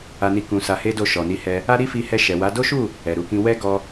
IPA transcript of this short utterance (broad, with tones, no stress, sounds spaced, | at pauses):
a˧ n i˧ k ũ˧ s a˧ h e˦ d o˦˨ ʃ ɔ˨ n i˧ h ɛ˧ | a˦ ɾ i˦ f i˧ h ɛ˧ ʃ ɛ˨ w a˨˦ d o˦ ʃ u˦˨ | ɛ˨ ɾ u˧ k ĩ˧ w ɛ˦ ɡ ɔ˧